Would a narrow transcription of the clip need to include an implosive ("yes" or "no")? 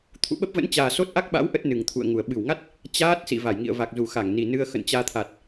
yes